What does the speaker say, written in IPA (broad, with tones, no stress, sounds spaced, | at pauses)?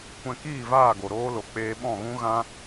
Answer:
kʷ ɛ̃˧ k iː˦˨ v aː˦˨ ɡ o˨ ɾ oː˧ l o˨ k͡p eː˧ ɓ ɔ̃˦˨ ɣ ũ˦ ɣ ã˦